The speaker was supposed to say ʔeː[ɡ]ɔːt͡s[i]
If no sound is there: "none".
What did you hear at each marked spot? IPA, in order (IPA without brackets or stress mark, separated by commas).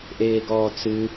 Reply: ɡ, ɨ